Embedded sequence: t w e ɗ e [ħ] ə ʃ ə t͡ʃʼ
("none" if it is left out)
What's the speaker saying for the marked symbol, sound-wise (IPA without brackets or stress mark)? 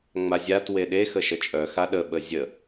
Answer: x